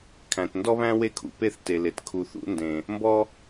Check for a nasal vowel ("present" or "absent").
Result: present